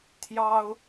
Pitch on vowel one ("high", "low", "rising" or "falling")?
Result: high